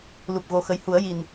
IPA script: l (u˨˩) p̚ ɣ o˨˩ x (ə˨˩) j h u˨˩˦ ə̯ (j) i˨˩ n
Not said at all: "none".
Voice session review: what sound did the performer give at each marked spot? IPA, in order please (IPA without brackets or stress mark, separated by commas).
u˨˩, ə˨˩, j